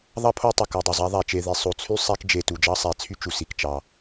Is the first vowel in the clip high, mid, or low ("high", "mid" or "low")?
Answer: low